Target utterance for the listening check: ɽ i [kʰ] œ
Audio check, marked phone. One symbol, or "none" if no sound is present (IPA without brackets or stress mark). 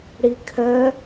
kʰ